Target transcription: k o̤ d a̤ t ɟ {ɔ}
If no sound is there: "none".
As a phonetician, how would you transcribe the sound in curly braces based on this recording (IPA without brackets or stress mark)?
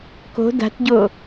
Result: o